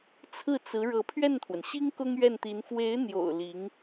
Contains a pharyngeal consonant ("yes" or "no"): no